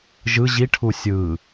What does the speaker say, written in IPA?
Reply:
ʒ ɯ ʑ i ʈʰ u sʲ ɯ

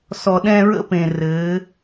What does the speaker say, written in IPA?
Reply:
s ɔ˨ ɗ ɛ̃˦ ɹ ə̰˦ p ẽ˨ r ɘ˨˦

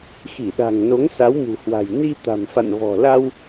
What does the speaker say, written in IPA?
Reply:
x i˧˩ ɗ a̤˨˩ ŋ n o˨˦ ŋ s a˨˦ w m ṳ˨˩ h w a̤˨˩ j n i˧ t̪ a̤˨˩ m f a̰˧˨ n v ɔ̤˨˩ l a˧ w

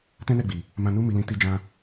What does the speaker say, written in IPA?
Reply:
t ɛ̃˦ n ɛ˦˨ ɡ͡b i˨ | m ã˧ n u˦ m i˧ l ĩ˧ t i˧ d͡ʒ ã˧

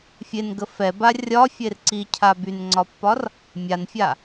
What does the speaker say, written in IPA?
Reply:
fʲ e n ɡ ə f ɛ b a rʲ ɒ fʲ e r ǀ i cʰ a b y n ŋ͡ǀ ɒ pː ɒ r | mʲ a n fʲ a

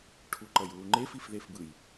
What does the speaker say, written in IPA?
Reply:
ʈʰ u ǃ ʌ j w u ŋ͡ǃ e f i f ð e f b ɯ j

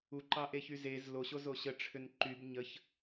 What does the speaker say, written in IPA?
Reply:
u ǃ ɑ ʔ e ç y z e z l o ɕ o z o ɕ ə ʈ͡ʂʰ ʏ n ǃ y b ɲ ə ç

